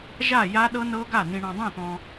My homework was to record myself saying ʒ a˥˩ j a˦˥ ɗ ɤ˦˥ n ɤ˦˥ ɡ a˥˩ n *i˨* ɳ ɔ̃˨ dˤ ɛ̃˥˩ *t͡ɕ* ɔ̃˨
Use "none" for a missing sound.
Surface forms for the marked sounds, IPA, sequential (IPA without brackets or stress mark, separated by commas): ĩ˨, t̪